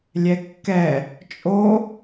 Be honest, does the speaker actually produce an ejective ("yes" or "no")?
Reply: yes